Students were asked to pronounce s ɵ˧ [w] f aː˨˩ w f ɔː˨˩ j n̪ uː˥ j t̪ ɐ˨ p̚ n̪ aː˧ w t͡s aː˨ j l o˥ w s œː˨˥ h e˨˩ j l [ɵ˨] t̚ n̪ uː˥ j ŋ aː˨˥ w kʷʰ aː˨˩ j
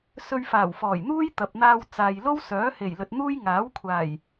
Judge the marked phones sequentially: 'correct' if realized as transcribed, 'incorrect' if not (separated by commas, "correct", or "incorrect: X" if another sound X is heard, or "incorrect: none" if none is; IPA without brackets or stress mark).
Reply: incorrect: ɥ, correct